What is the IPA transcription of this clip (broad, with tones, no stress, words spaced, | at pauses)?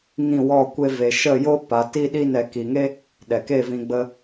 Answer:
ŋĩ˦˨wɔ˦˨ kʷe˧ve˨ ʃə˦˨jo˦ pa˨˦ti˦ɗi˦nɛ˧ ki˨ŋe˦ | ɗɛ˨ke˦˨vĩ˧ ɡ͡bə˧